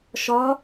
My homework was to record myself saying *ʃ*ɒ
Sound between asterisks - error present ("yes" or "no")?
no